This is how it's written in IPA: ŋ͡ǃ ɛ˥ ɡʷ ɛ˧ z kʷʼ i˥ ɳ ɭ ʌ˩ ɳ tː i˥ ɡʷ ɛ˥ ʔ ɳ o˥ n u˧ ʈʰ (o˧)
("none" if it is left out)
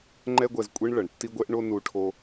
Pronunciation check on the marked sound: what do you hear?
o˧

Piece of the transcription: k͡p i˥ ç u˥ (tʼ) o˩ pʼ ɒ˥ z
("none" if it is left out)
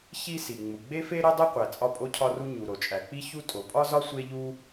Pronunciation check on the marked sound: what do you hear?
tʼ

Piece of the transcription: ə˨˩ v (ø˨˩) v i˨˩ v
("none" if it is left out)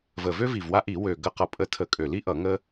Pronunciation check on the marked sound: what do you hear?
ø˥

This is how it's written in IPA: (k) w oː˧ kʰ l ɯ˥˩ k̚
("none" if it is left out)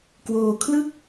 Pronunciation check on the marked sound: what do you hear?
k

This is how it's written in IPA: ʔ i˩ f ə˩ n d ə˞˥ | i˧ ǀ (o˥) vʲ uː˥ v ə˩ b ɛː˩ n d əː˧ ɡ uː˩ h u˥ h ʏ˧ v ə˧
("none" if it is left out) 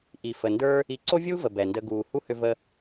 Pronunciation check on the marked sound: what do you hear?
o˥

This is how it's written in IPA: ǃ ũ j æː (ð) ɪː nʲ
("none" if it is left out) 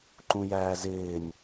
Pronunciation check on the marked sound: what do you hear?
z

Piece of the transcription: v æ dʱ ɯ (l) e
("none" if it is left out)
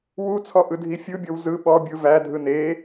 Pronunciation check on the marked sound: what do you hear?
n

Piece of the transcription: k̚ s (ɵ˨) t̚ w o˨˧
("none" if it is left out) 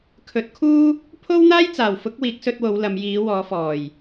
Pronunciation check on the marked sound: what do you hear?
ɵ˧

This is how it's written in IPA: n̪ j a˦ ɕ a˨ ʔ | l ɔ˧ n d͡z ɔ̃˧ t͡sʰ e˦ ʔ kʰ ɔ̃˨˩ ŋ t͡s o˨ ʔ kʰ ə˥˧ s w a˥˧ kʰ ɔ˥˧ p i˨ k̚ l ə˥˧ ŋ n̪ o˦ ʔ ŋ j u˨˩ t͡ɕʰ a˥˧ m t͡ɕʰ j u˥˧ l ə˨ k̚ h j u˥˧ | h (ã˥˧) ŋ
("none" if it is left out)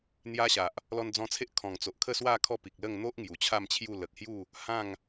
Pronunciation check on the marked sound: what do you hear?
ã˥˧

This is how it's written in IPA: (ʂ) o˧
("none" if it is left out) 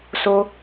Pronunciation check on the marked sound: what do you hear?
s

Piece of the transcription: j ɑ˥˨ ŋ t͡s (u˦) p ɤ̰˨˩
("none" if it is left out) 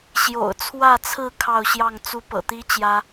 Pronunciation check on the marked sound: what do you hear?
u˦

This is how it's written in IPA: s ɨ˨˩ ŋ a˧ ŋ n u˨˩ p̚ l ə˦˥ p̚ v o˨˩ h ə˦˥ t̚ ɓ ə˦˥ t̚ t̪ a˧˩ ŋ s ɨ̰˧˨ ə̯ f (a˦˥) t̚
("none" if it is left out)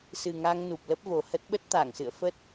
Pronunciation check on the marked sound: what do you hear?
ə˦˥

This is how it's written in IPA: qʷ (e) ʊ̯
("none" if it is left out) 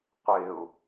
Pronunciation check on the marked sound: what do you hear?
e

